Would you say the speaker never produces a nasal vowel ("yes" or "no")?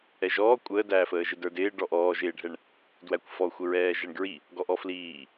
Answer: yes